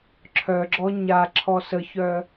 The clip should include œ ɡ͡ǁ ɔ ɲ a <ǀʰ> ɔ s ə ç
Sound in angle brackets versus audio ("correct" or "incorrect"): incorrect